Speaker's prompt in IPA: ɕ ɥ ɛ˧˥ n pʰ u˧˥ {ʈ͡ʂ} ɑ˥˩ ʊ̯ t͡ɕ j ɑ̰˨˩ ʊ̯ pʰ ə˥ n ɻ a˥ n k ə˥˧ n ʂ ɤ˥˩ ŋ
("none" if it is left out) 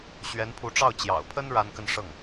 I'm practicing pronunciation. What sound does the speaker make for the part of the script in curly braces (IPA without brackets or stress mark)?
ʈ͡ʂ